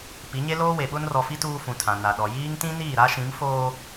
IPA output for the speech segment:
p i˨˦ ɲ e˦ l oː˦ w e˨ ɓ ʊ˦ n r ɔ˨ f i˦ t uː˦ f ũ˨ tʰ ã˨ n a˨ ɗ ɔ˨ j iː˦ ŋ t ĩ˦ n iː˦˨ ɾ a˦ ʃ ĩ˨˦ m f oː˦

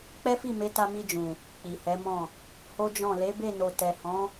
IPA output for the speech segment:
k͡p ɛ˦ f i˦˨ m e˨˦ t a˧ m i˧ d͡ʒ ũ˨ | k͡p i˨ h ɛ˨˦ m ɔ̃˦˨ | h o˦ d͡ʒ ɔ̃˦˨ l e˨˦ b e˦˨ n o˨ t ɛ˨ h ɔ̃˨˦

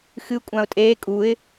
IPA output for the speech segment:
x ɨ kʷʼ ã ʊ̯ tʼ eː kʼ u ɪ̯

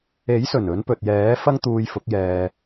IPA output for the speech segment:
e˨˥ j s ɵ˨˩ n ɵ˨˧ n p ɵ˨ t̚ j ɛː˨˥ f ɐ˥ ŋ t̪ uː˧ j f ʊ˨˥ k̚ j ɛː˧

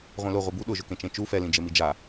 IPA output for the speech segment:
ʁʷ ĩ l ʊ ʁʷ i b u ɗ ʊ ʒ ʊ k ẽ t͡ʃ ẽ t͡ʃ u f ɛ l ĩ d͡ʒ e m i d͡ʒ a

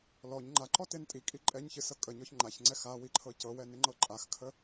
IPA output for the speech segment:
l ɔ ɲ ŋ͡ǃ a ǃ ɔ t e n tʼ i kʼ i ǃʼ ɛ ɲ ç ɨ s ɤ kʼ ə ɲ ɔ ç ŋ͡ǃ a ç ŋ͡ǀ ɛ x a w i ǃʰ ɤ c ɤ w ɛ n ɪ ŋ͡ǃ ɤ ǃʼ a x kʰ ə

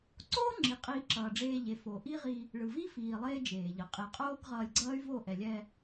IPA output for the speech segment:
ǀ oː˦ ŋ͡ǁ i˨ qʼ iː˧ ǁ ʌː˨ ɖ͡ʐ eː˧ ʎ e˨ f o˨ ʔ i˦ ʁ i˧ | ɭ ɯ˨ v i˦ f iː˨ lˠ eː˦ d͡ʒ eː˨ ʎ ʌ˨ qʼ e˧ qʼ oː˦ ɡ ʁ ʌː˧ lʲ ɡ͡ǀ ʌː˦ y̯ v o˦˨ ʔ ɛ˨ lʲ ɛ˧

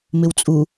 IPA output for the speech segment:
m ɪ w t͡sʼ u

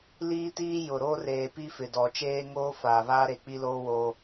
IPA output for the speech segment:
l iː˦ t iː˦ j ʊ˨ ɾ oː˦ r eː˨ p i˦ f ɪ˨ d ɔ˨ t͡ʃ eː˦ ŋ oː˦ f aː˨ β aː˦ ɾ e˨ k͡p i˦ l oː˦ w oː˦

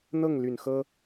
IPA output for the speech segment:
n̪ ɤ˥˩ ŋ l y˨˩ n x ɤ˥

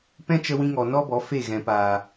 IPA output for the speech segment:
p ɛ̃˦ t͡ʃ ə˧ w ĩ˧ ŋ ɔ˨ n ɔ˦ b ɔ˨˦ f e˦˨ ɣ ɛ̃˨ p aː˨

